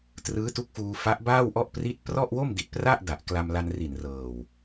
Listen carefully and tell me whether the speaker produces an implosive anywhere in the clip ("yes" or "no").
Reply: no